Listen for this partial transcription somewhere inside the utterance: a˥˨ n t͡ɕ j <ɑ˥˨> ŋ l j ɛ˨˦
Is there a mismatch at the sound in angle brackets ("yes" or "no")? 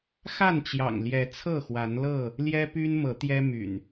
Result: yes